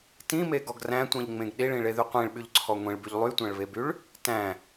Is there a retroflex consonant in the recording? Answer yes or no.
yes